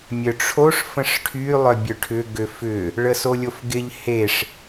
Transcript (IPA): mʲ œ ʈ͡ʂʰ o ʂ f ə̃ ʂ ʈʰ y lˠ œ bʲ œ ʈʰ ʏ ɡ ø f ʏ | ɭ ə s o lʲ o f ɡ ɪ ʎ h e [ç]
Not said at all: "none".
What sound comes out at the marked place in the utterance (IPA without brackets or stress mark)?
ʂ